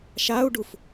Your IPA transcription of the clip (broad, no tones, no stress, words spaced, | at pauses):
ʃau̯ɖuf